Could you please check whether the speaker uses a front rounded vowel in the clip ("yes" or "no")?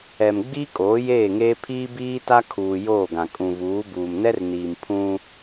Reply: no